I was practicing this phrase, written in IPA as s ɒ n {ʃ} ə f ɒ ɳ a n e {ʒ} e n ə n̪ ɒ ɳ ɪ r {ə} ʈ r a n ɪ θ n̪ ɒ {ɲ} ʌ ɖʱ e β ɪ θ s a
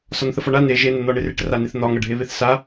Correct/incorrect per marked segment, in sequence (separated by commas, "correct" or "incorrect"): incorrect, correct, incorrect, incorrect